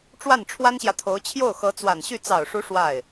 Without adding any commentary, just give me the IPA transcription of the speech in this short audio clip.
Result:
ʈ͡ʂ w a˥˩ n ʈ͡ʂʰ w a˥ n ɕ j ä˨ t̪ʰ o˧˥ ʊ̯ t͡ɕʰ j o˥˩ ʊ̯ x ɤ˧˥ t͡s w a˨˩ n ɕ y˥˩ t͡s ɑ˨˩ ʊ̯ ʂ u˧˥ ʂ w a˥˩ ɪ̯

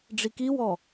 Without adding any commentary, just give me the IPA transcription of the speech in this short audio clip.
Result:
ɖ͡ʐ i k i w ɔ

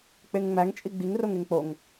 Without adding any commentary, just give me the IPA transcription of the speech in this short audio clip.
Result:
k͡p e ŋ ŋ͡m æ ŋ t͡ʃʼ i ɡ͡b i ŋ r o ŋ e ŋ k͡p o ŋ

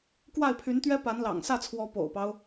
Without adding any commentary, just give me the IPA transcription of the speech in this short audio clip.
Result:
k w a˥˩ ɪ̯ pʰ y˧˥ n t̪ ɥ ɛ˥ p a˧˥ n l ɑ̰˨˩ ŋ s ä˥˩ t͡sʰ w ɔ˧˥ p o̰˨˩ ʊ̯ p ɑ˦ ʊ̯

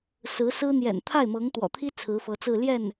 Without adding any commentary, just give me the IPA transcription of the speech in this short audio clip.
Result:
s ɹ̩˧˥ s ɹ̩˥ n̪ j ɛ̰˨˩ n t̪ʰ a˥˩ ɪ̯ m ɤ˧˥ ŋ t̪ w ɔ̰˨˩ t̪ʰ i˥ t͡sʰ ɹ̩˧˥ f ɤ˧˥ t͡s ɹ̩˥˧ l j ɛ˥˩ n

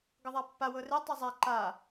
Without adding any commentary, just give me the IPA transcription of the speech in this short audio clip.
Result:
ɡ ɤ ðˤ a pː a w ɤ r e tˤ i zˤ a ǃ a

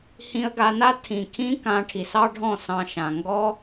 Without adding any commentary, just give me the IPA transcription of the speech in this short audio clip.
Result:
h ĩ˧ ə̯ ɡ a˧ n a˦ tʰ ĩ˨ kʰ ĩ˦ k ã˧ ʈʰ i˨ s ɑ˦ ɖʱ ɔ̃˦˨ s ɑ̃˧ ʃ ã˨ ŋ ɡ ɔ˦

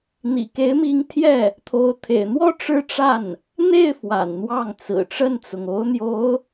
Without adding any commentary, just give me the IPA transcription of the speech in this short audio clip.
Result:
n̪ ḭ˨˩ k e˧˥ ɪ̯ m i˧˥ ŋ t̪ʰ j ɛ˥˩ | t̪ʰ o˧˥ ʊ̯ t̪ʰ ḛ˨˩ ɪ̯ n̪ w ɔ˥˧ ʈ͡ʂ ɻ̩˥˧ ʈ͡ʂ a˥˩ n | n̪ e˥˩ ɪ̯ f w a̰˨˩ n n̪ w ɑ˥˩ ŋ t͡s ɹ̩˨˩ ʈ͡ʂ ə˥˩ n t͡s ʊ˩ ŋ o˧˥ ʊ̯ n̪ j o˧˥ ʊ̯

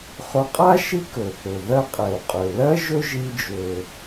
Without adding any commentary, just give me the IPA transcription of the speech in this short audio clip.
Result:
χ ɵ˧ qʼ a˥ ʃ i˥ k ɵ˩ θ ɵ˩ ð ɜ˧ qʼ ɛ˩ u̯ qʼ ø˩ l ɜ˥ ʒ ɵ˥ ʒ i˧ d͡ʒ ø˩

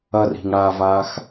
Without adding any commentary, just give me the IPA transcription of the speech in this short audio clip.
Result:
ɐ r i̤ ŋ ɽ a v a x

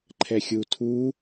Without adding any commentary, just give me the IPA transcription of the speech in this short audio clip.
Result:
ǃʰ ɛ xʲ u tʰ u

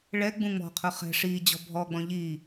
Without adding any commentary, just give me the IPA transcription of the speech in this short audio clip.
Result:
ɭ ɛ ɡ͡b ũ ŋ͡m ɔ̤ qʰ ʊ χ ɛ̤ ʂ i d͡ʑ ɔ̤ bʱ ɔ ɡ͡b ɔ̃ ʎ i

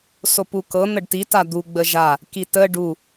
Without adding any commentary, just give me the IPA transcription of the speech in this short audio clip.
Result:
s o p u k ɤ n̪ ə ɖ t i t a d̪ u ɡ͡b ə ʒ a | k i t ə ɖ u

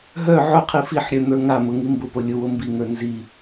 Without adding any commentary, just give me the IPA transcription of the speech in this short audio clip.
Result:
ɦ œ ʕ ʊ qʰ i f i ħ ɾʲ œ n̪ ə˞ ŋ a m ʊ ŋ i m b ʊ p o lʲ ʊ w o m b i ŋ ə˞ n z i

